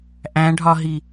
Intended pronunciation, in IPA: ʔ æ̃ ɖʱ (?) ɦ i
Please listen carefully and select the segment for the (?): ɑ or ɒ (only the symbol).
ɒ